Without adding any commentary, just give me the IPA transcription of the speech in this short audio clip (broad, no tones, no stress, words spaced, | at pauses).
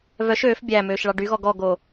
vœʃ øːf bʲæmøːʃ ɭɑɖyɣɔ ɡɔɡo